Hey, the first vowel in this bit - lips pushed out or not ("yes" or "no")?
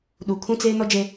yes